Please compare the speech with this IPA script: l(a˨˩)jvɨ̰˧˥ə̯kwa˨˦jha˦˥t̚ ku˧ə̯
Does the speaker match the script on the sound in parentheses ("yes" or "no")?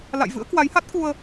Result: no